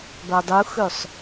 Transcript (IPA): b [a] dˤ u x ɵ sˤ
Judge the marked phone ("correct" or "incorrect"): correct